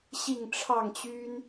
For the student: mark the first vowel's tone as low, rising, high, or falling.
falling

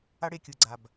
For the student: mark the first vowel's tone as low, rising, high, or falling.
high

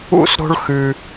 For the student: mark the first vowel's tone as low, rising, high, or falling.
high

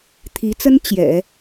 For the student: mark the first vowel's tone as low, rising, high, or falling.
rising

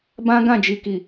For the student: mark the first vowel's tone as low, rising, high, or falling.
high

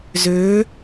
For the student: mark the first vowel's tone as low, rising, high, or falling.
rising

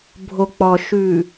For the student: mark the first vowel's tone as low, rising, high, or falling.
low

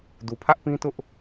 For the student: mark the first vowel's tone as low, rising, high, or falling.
low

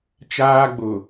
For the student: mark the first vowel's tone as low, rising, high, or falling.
high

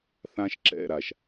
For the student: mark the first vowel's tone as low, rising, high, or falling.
high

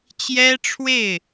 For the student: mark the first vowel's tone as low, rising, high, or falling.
high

